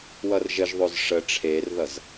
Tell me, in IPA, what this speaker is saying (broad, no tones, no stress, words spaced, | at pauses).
wʌrʒəʒðˤoz ʂə ʈ͡ʂʰerðʌz